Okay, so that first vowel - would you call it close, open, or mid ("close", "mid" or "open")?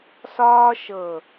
open